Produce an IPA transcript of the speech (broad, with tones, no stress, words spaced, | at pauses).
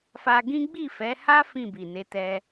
fa˧ɡĩ˦ ɡ͡bi˦˨fɛ˨˦ha˦ fĩ˦˨bi˨ne˨˦tɛ˧